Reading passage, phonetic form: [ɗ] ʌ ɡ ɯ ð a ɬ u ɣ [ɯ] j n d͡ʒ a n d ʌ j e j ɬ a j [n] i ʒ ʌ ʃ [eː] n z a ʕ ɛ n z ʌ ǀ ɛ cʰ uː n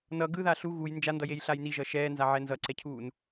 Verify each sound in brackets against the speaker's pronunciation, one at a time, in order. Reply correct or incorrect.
incorrect: n, incorrect: u, correct, incorrect: ɛː

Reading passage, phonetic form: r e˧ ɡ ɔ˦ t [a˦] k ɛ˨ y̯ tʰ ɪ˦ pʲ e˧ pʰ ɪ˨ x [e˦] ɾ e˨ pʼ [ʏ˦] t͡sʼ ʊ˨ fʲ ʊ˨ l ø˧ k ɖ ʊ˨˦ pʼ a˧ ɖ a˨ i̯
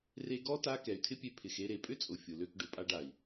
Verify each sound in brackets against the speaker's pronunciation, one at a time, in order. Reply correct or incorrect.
correct, incorrect: e˧, correct

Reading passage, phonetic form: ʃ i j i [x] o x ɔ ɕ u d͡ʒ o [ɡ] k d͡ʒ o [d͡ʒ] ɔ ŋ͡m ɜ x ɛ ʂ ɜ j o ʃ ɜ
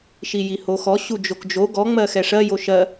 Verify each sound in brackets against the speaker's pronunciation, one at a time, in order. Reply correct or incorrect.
incorrect: h, incorrect: none, incorrect: ɡ

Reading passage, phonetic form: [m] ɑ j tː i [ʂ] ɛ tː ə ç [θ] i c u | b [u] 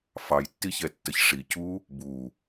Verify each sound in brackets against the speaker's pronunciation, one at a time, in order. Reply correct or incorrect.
incorrect: f, incorrect: ç, incorrect: ʂ, correct

